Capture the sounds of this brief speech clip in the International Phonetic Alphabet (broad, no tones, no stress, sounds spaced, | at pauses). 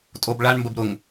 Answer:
tʼ o b ɭ a ɳ m b ə b ɾ ʊ ŋ